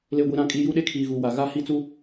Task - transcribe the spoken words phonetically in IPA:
l e˨ ɡʷ i˨ ɾ ã˨ kʼ i˨ j u˦ ɗ e˦ kʰ iː˨ ɣ u˨ w a˨ ɣ a˦ h i˦ t͡s u˦

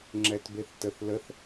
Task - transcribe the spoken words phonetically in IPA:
ŋ͡ǁ ɛ t b e θ t ə θ l ə θ

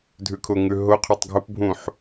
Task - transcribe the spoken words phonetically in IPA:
dʱ ʉ kʰ ʊ ŋ ʉ ɦ ʊ qʰ ʊ tˤ ɡʱ ʊ p bʱ ũ ħ

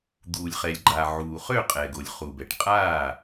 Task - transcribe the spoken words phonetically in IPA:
d̪ uː˩ lʲ χ ɛ˩ lʲ ɡ͡ǃ a˩ ʕ uː˩ χ ø˥˩ qʼ ɛ˩ ɡ o˩ lʲ χ u˩ b ɛ˩ ʈ qʼ aː˥˩

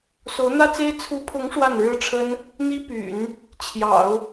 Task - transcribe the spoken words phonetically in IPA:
s o˧˥ ʊ̯ n̪ ä˥ t͡s e˥ ɪ̯ t͡sʰ u˧˥ pʰ ʊ˧˥ ŋ ʂ w a˥˩ n ɻ ɻ̩˥ ʈ͡ʂʰ ə˥ n | n̪ i˥ p y̰˨˩˦ n | t͡ɕʰ j ɑ̰˨˩˦ ʊ̯

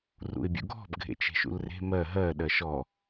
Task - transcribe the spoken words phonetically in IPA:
r ṵ ɪ̯ bʲ ṵ ɡʱ ɔ̤ b ɡʱ ḛ t͡ʃ e̤ ʃ ṵ l r e̤ m ɜ ɦ ɜ ɗ ɜ ʃ ɔ

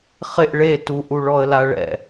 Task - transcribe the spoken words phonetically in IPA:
χ ɪ ʔ ɭ e t u ʔ u ɭ ɔ ə̯ l a ɭ ɛ̰

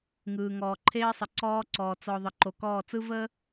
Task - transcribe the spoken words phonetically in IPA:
ŋ ɯː˨ ŋ ɔː˨ ǃʰ eː˦ sˤ ə˨ ǀ ɔː˦ ǀ ɔː˨ t͡s ɔ˨ ðˤ ə˨ ǃ o˨ k ɔː˦˨ t͡s ɯ˦ v əː˦

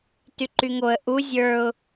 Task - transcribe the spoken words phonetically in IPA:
t y ǃ y ŋ o ə̯ ʔ u zʲ ə˞ ʊ̯

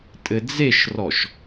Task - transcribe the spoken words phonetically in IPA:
tʼ ɘ d͡z e ʃ r ɔ ʃ

